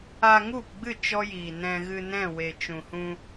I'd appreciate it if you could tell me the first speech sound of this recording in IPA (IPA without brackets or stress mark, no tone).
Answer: aː